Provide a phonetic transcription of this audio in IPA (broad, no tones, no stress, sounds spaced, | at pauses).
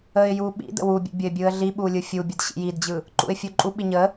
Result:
ə ɪ̯ j u ɓ ḭ d ə̰ w u bʲ ə̰ bʲ ə ɪ̯ bʲ ɯ ə̯ ɮ i ɓ u lʲ ɯ fʲ u bʲ ɯ d ɕ ḭ j i d d͡ʑ ɯ | ǃ ṵ ɪ̯ fʲ u ǃʼ u ɓ i ɲ ə